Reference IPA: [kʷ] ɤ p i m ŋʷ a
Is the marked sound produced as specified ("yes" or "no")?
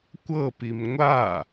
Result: yes